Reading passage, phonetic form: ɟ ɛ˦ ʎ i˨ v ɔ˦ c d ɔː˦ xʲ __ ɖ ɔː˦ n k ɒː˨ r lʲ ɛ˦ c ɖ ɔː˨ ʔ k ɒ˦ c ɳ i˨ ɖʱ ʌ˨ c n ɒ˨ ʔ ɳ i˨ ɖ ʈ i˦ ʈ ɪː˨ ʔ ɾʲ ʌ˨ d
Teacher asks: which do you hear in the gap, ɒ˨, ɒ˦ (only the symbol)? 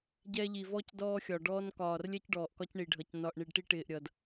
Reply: ɒ˨